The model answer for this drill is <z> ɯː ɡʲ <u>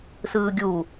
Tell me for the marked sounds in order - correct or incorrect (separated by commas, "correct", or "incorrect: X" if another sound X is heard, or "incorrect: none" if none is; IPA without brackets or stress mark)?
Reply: incorrect: s, correct